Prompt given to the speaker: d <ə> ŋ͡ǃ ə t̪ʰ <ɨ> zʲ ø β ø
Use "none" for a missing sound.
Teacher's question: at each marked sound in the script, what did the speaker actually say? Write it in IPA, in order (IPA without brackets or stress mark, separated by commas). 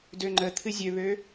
ø, ɨ